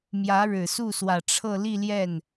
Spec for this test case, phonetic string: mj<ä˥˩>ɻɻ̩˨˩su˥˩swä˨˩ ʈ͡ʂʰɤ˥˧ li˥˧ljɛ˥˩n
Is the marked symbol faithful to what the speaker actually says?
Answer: no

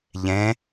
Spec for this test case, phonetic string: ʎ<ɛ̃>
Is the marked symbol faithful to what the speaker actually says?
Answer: yes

